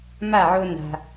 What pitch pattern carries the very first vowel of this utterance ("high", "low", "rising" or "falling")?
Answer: falling